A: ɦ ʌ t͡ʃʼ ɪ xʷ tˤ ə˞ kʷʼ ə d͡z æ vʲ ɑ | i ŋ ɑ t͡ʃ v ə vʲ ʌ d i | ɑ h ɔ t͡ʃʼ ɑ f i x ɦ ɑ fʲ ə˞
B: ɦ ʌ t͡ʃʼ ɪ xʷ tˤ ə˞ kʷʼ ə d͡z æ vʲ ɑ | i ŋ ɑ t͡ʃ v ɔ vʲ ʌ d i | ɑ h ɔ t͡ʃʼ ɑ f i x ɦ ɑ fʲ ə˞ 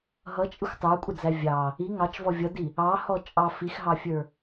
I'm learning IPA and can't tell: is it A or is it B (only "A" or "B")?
B